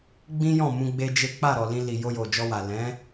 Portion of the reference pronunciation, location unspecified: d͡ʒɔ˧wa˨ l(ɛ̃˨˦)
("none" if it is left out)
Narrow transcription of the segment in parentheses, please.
ɛ̃˨˦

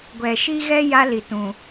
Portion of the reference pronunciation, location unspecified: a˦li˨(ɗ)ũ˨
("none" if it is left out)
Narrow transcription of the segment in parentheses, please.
t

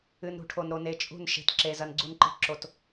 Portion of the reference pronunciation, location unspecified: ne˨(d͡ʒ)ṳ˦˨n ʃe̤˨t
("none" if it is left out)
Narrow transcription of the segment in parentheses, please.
t͡ʃʼ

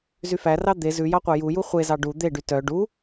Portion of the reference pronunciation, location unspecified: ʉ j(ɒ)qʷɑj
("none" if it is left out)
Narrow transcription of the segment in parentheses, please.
ɑ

